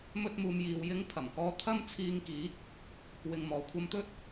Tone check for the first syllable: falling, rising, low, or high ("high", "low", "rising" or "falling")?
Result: high